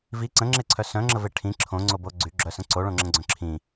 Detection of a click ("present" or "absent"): present